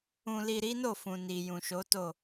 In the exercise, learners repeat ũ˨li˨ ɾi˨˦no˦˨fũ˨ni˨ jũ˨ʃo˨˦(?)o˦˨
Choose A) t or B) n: A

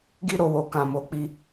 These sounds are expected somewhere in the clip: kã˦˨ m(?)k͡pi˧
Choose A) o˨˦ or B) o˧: A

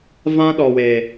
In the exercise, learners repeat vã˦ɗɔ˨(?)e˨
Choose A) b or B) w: B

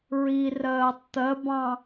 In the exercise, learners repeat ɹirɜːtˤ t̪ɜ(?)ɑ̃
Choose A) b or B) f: A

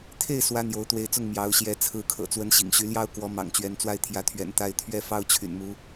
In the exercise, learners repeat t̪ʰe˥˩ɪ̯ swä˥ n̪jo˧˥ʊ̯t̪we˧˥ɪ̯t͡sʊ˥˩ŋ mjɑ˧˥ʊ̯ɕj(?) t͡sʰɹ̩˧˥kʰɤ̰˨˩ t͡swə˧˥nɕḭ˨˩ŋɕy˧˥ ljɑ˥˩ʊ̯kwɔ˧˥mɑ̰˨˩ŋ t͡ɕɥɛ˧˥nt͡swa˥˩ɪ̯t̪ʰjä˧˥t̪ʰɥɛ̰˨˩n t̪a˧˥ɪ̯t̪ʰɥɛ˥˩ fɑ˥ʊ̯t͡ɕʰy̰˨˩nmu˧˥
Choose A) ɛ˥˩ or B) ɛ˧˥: B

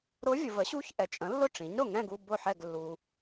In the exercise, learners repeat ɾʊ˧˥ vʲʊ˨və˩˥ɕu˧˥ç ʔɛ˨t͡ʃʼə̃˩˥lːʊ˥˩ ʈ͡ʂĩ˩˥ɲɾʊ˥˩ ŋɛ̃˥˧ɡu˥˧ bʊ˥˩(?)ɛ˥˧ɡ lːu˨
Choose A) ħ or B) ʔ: A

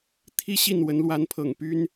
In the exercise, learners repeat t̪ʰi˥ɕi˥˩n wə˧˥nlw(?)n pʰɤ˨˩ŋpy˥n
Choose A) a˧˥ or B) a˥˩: A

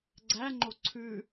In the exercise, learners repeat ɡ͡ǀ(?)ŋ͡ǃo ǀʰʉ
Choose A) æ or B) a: A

